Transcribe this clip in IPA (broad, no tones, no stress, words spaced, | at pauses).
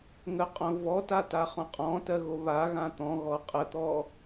ŋəqʼõ vɔtata χõqʼɔ̃ tɜɣoβaɣã t̪ɔ̃ ɣɔqʼət̪ɔ